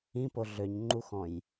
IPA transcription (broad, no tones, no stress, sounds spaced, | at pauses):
ĩ p o ɮ ø ɲ ŋ͡ǃ u x ɔ̃ j